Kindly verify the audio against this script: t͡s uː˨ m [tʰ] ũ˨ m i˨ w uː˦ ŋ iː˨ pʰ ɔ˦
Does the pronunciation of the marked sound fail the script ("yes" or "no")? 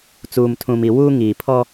no